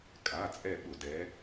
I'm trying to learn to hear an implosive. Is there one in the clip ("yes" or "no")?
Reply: yes